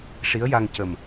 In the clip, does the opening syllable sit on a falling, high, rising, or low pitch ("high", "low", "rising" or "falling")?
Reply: rising